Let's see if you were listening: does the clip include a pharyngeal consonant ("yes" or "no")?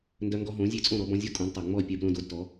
no